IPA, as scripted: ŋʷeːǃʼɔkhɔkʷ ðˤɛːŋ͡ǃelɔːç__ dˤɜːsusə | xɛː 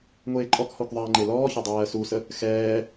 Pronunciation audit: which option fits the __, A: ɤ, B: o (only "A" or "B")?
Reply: A